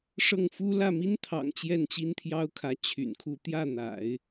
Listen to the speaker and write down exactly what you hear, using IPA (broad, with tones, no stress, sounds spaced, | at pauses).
ʂ ɤ˥˩ ŋ f u˥ l ä˥˩ m i˥ n t̪ʰ ɑ̰˨˩ ŋ t͡ɕ j ɛ˥˩ n t͡ɕ i˥ n t̪ʰ j ɑ˥ ʊ̯ kʰ ä˧˥ t͡ɕʰ y̰˨˩ n kʰ u˥˧ t̪ j ä˥˩ n̪ a̰˨˩˦ ɪ̯